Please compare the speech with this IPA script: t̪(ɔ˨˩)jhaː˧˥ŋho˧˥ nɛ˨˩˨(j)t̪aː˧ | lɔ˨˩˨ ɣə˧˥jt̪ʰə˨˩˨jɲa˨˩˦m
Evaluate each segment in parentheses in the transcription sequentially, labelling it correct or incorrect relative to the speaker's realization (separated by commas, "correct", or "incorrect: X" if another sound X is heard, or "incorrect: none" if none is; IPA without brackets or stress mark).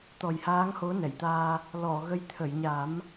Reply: correct, correct